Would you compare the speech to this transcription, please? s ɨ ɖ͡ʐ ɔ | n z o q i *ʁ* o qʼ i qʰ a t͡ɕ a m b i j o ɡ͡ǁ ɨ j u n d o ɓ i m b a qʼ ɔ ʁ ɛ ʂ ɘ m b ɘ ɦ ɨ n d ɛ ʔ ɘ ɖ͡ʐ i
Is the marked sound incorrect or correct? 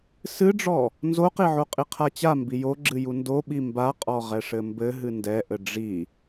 incorrect